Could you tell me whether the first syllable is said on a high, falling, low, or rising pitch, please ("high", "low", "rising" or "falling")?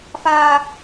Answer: high